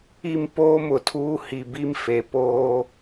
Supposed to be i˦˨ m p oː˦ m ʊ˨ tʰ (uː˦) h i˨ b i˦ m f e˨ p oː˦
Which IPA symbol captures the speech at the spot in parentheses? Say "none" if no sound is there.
uː˦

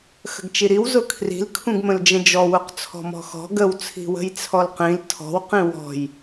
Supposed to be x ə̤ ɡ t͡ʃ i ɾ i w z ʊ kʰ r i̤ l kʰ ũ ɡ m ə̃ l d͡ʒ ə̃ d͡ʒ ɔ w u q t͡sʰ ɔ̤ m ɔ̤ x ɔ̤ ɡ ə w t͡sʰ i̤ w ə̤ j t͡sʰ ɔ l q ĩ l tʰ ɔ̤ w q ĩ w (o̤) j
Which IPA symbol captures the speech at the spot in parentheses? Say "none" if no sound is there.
ɔ̤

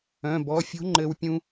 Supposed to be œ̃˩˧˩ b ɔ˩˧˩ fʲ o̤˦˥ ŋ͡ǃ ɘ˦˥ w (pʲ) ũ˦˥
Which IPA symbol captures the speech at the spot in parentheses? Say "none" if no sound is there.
pʲ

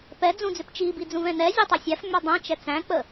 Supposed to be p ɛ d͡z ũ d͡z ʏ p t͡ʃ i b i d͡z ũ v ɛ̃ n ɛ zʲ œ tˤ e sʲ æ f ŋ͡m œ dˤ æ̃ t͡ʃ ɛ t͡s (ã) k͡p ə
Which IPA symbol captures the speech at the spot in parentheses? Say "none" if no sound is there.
æ̃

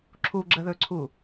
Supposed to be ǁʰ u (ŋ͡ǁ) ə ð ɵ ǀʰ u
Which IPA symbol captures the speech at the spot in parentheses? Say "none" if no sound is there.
ɡ͡ǁ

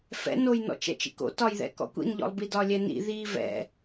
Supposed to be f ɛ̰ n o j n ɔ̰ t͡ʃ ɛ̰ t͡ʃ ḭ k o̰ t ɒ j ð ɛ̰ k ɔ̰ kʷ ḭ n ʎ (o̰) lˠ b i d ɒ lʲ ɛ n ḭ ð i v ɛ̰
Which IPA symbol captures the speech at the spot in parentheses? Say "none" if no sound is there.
ɔ̰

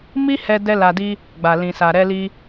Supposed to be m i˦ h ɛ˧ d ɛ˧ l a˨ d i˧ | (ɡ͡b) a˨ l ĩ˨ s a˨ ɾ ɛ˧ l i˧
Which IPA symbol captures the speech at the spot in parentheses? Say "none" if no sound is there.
ɡ͡b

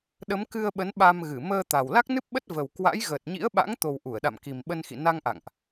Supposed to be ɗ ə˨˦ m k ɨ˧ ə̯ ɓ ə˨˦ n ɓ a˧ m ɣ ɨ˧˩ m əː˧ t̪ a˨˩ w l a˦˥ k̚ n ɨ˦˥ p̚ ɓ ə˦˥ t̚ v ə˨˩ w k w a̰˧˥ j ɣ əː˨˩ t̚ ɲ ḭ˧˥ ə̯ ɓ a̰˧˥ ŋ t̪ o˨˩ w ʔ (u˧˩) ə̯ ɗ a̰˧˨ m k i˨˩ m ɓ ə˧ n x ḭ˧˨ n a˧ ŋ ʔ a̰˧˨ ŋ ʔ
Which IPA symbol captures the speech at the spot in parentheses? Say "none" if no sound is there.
u˧˩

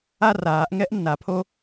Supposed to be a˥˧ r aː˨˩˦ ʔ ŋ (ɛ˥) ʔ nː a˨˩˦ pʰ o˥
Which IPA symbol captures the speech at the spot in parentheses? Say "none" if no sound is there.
ɛ˥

